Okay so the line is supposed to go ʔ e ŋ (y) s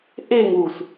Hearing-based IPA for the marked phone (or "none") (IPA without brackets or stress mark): u